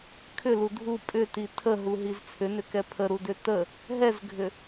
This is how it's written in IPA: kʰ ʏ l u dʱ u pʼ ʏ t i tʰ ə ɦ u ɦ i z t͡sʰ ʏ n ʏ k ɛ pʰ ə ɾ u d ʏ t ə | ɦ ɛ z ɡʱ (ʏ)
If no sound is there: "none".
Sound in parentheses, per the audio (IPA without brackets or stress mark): ʏ